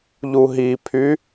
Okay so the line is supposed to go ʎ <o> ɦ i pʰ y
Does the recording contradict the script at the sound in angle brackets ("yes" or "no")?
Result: yes